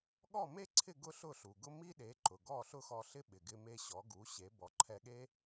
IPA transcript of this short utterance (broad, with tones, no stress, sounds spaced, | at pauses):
ɠ ɔ˥˩ m e˥ ǀʰ ɪ˥˩ ɡ ʊ˥ ɬ ʊ˥˩ ɬ u˩ ɡ ʊ˥ m i˥ ɗ e˩˥ ǃ ʊ˩ ɡ ɔ˥˩ ɬ ʊ˥ x ɔ˧ ɬ ɪ˥ ɓ ɪ˩ ɡ ɪ˧ m e˧ ɕ ɔ˩˥ ɡ u˩˥ ɕ e˩˥ b ɔ˩˥ ǃʰ ɛ˧ ɠ e˥